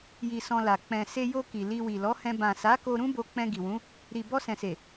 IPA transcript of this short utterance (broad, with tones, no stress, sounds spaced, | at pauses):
j i˧ s ɔ̃˧ l a˨ k͡p ɛ̃˨ s e˧ j o˧ k i˨ l i˧ w i˨ l ɔ˨˦ h ɛ̃˧ b ã˨ s a˨˦ k o˧ ɾ ũ˦ b o˧ k͡p ɛ̃˧ ɡ i˨ w ũ˨˦ | ɾ i˨ b ɔ˧ s ɛ̃˨ s e˨